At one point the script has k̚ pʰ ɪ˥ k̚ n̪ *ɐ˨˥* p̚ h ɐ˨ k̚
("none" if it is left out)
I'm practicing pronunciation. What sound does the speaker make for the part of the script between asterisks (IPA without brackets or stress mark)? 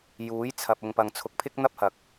ɐ˥